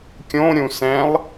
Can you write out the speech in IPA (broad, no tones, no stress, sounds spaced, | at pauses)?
kʲ õ ɾʲ ũ s ɛ̃ lˠ